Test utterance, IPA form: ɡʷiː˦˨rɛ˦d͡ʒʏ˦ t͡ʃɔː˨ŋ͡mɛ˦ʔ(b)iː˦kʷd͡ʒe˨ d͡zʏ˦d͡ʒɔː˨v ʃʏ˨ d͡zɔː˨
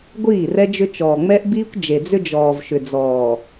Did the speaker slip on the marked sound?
no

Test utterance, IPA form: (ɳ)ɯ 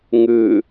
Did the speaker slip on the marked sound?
yes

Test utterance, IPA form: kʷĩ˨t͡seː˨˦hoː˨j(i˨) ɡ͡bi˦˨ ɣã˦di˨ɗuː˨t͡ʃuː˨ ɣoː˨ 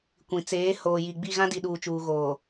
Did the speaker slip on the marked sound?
no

